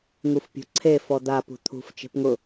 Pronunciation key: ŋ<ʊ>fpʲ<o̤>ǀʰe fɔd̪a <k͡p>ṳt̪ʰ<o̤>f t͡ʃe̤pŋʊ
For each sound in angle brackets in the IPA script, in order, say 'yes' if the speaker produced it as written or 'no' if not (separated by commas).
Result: no, yes, no, no